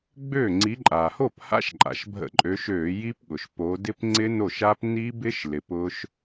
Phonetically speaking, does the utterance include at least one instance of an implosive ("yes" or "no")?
yes